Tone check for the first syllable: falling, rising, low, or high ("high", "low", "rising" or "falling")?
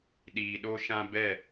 low